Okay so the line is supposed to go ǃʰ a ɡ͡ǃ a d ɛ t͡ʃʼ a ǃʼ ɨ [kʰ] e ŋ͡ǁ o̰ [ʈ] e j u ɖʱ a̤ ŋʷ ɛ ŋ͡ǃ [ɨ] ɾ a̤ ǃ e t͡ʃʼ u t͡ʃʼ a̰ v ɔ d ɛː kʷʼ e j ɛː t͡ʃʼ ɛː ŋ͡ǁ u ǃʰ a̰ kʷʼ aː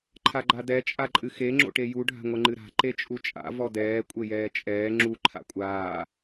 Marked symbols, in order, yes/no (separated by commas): no, yes, yes